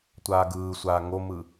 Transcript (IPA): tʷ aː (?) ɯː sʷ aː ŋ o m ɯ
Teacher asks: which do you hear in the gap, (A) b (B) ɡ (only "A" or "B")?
B